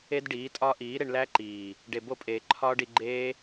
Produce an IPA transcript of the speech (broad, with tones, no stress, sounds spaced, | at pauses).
e˦ d ɖ iː˨˦ tʼ ɒ˦ ʔ iː˨˦ ɾ e˧ ɳ l æ˦ ǃ iː˨ | ɖ e˨ b o˦˨ pʼ eː˨ ǃʰ ɒː˦ ɖ i˧ ɡ͡ǃ eː˦